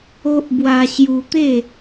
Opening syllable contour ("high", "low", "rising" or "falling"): high